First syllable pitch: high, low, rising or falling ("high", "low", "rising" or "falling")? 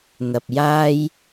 low